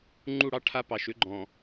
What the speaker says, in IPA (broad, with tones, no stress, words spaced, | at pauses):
ŋ͡ǃu˦˨ɽɑ˦ ʈʰa˦pɑ˨ʃʏ˦ ɡ͡ǃɔ̃˨